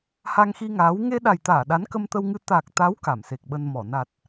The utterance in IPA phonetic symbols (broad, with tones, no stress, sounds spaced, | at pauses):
h a˧ ŋ x i˧ ŋ aː˨˦ w ŋ e˧ ɗ a˨˩ j t̪ aː˧˩ ɗ a˨˦ n k ə˧ m t̪ ə˧ w ŋ ɨ˧ t̪ a˨˩ k̚ t̪ a˨˦ w k a˧˩ m s e˨˩ k̚ ɓ ə˧ n m ɔ˧˩ n a˨˩ t̚